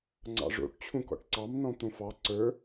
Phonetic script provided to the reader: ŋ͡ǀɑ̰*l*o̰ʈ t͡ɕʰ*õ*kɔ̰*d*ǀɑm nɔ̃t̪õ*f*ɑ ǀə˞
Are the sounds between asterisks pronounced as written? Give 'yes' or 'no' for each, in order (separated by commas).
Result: no, no, no, yes